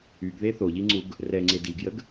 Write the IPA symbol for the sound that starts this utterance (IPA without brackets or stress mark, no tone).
y